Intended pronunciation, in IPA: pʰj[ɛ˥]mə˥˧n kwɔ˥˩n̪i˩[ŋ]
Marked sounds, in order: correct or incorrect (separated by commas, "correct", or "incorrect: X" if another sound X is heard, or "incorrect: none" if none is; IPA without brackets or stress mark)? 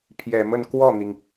incorrect: ɛ˨˩, correct